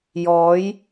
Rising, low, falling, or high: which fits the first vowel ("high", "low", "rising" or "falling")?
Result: rising